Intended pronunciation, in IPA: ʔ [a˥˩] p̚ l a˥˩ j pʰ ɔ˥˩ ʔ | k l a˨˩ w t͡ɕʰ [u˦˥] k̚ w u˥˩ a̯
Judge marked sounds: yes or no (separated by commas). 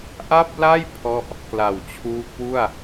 yes, no